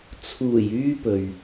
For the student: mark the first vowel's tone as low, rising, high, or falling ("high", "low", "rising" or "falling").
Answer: low